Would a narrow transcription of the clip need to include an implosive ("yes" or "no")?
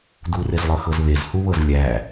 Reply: no